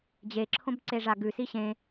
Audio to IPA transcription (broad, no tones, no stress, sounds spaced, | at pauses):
d͡ʑ e ǁʰ õ b ǀ e ʐ a ɡ ʉ s i ɕ ẽ